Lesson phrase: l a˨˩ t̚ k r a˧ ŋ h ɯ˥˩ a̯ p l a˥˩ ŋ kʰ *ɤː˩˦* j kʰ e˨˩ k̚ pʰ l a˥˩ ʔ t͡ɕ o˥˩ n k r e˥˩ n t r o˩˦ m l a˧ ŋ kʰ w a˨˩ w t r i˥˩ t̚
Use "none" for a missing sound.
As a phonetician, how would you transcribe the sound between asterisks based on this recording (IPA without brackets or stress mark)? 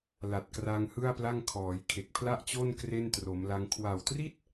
ɔː˩˦